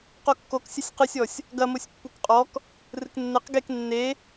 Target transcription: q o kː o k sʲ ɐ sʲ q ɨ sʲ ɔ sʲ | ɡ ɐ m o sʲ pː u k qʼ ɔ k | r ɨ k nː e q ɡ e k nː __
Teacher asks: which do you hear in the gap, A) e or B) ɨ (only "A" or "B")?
A